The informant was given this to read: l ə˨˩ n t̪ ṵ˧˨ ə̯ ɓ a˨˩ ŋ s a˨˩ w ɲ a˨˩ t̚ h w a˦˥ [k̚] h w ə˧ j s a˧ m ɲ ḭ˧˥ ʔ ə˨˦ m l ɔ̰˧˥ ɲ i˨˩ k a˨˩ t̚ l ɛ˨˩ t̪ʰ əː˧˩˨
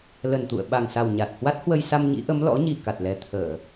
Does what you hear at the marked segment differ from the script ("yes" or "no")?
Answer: yes